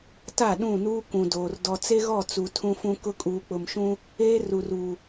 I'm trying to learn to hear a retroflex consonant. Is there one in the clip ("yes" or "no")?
no